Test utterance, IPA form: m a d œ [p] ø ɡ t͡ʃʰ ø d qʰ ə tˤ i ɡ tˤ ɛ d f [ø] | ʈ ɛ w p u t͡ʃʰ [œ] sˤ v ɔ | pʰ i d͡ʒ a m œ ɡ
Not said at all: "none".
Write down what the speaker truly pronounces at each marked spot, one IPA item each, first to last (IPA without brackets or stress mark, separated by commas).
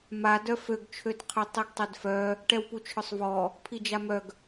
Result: f, œ, œ